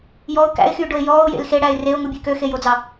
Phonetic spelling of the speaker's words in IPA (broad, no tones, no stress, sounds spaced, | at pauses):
j ɔ ʊ̯ k æ̰ ɪ̯ x yː ɖ o ɪ̯ j ɔː ʊ̯ j ḛ l x e ɽ æ ɪ̯ r e ʊ̯ ŋ u bʲ ʉ k ø x e j o d͡z ɑ